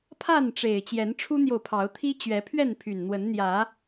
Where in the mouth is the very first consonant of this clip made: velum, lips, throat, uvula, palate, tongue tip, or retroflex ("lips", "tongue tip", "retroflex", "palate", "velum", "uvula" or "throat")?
lips